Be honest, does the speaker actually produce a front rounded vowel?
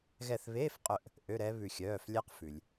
yes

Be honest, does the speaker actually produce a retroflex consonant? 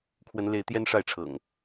yes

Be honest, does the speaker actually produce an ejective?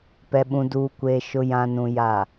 no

